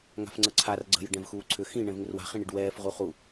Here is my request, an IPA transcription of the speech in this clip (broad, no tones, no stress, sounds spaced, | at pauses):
ŋ a̤ f ŋ͡ǀ ə ǀʰ a r ɡ͡ǀ ə̤ j ə ɖ ɛ̃ v x uː ǀʰ ʏ x ĩ ɳ ɛ̃ v ŋ ʏ r w a̤ χ ĩ ɳ i ɖ w ɛː f ʁ u χ u